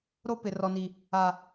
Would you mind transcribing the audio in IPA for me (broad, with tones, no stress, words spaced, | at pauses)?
ɾo˦ pɪ˨rɔ˨ni˨ | a˨